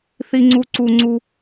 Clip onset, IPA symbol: θ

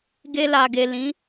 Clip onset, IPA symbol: ɡ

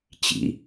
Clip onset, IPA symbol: t͡ɕ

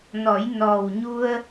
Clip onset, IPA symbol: n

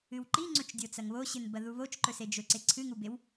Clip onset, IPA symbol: ɨ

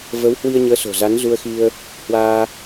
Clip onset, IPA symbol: v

